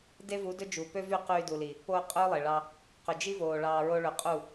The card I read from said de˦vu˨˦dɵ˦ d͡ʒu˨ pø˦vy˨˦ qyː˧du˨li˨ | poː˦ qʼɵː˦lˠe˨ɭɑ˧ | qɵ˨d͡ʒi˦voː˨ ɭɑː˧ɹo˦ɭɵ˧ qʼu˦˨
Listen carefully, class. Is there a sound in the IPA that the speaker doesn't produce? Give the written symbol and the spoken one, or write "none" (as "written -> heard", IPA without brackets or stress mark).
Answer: y˨˦ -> y˦˨